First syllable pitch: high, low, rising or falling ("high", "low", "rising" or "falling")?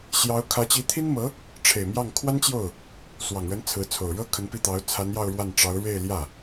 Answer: rising